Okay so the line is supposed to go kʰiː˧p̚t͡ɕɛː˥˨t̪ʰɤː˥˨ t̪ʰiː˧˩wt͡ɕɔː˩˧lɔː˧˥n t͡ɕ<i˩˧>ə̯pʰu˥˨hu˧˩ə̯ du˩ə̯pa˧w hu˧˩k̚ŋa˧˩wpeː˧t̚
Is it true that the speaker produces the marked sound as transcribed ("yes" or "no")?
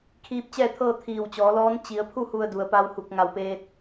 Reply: yes